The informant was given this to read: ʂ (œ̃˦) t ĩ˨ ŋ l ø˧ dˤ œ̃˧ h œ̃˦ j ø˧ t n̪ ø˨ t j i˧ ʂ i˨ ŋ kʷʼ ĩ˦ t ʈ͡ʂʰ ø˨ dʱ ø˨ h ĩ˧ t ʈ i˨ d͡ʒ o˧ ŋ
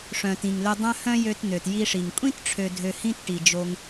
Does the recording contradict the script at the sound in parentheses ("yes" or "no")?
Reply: yes